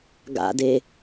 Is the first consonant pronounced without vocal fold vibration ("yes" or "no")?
no